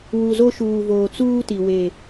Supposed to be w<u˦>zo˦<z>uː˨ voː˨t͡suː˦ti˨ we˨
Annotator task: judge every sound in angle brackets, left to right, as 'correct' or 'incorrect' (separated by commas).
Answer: incorrect, incorrect